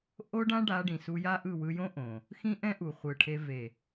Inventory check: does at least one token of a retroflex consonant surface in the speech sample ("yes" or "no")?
yes